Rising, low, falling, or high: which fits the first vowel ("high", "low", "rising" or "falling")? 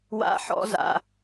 high